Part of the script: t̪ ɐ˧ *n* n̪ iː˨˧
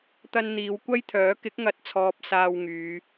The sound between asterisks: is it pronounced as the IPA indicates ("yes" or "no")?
yes